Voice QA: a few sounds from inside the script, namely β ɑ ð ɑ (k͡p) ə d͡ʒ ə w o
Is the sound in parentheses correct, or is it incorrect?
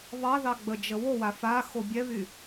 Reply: incorrect: ɡ͡b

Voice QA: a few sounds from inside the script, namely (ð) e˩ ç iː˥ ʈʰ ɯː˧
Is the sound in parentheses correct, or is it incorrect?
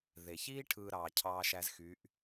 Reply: correct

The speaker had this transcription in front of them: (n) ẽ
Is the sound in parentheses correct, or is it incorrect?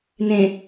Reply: correct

